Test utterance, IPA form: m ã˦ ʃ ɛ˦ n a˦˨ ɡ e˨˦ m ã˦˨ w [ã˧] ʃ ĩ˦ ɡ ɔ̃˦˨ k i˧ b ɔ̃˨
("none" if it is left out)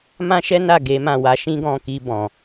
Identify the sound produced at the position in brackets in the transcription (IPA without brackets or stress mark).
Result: a˧